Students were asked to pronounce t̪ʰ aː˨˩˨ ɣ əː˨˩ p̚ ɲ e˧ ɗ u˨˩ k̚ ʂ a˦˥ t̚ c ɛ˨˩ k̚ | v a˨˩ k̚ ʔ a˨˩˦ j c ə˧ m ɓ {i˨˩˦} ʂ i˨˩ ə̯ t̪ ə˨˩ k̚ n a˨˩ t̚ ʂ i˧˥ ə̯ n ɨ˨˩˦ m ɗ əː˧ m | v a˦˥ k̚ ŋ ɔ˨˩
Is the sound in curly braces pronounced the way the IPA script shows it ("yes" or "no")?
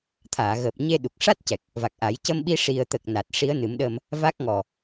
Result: no